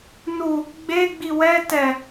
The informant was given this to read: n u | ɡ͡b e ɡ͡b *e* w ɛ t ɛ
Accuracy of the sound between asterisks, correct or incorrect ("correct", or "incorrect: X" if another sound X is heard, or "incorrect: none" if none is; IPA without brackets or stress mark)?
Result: incorrect: i